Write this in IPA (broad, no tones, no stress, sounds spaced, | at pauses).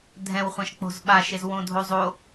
dʱ ɛ̃ w χʷ ã ʃ k͡p o̤ z ɓ a ʃ e z w õ dʱ o zˤ o